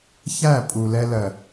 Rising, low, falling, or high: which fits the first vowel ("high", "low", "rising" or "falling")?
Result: falling